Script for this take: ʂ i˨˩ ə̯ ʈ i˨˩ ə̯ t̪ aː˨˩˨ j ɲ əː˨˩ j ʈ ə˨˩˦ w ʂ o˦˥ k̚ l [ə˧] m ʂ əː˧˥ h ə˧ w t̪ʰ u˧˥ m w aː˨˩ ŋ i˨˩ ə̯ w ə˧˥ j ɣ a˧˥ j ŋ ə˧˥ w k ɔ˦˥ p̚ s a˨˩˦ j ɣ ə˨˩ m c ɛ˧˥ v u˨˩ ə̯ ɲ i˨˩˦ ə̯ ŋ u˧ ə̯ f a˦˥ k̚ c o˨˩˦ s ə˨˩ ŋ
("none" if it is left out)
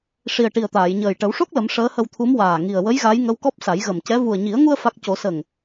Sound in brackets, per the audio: ə˨˩˦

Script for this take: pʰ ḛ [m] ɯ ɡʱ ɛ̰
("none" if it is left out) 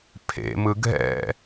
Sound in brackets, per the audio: m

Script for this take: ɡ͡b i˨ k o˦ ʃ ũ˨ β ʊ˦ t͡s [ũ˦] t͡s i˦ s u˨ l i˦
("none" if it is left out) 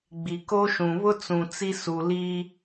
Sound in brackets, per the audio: ũ˨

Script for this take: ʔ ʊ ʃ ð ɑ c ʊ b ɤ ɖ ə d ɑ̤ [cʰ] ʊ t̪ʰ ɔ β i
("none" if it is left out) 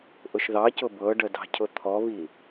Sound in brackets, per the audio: cʰ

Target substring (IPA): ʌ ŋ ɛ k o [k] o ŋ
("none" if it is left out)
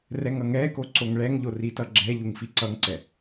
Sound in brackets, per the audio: ǀ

